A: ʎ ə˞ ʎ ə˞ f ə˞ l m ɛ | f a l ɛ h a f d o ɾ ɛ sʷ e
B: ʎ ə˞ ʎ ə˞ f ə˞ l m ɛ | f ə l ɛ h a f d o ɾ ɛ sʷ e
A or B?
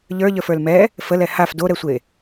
B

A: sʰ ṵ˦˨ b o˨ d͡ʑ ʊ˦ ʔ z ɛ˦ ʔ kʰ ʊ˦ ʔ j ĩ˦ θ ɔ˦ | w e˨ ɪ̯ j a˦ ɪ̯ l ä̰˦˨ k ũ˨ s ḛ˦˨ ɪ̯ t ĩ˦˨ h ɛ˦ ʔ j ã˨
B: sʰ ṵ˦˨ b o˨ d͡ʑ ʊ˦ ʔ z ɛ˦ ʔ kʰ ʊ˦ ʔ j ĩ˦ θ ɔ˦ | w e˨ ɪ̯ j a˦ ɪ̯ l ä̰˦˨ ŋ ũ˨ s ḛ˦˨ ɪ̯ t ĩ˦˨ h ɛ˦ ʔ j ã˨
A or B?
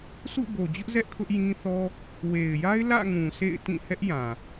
B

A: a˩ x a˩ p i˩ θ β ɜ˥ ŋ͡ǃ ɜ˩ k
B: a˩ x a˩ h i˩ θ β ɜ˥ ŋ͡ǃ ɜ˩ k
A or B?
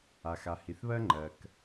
B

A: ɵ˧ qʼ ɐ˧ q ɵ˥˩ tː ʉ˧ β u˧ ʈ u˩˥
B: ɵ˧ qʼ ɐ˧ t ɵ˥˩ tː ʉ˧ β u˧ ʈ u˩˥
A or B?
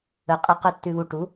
A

